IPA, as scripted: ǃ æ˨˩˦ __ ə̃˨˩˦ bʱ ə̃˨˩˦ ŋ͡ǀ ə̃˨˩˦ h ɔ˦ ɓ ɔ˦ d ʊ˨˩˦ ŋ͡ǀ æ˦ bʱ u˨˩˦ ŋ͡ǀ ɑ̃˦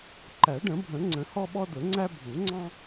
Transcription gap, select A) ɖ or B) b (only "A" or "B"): A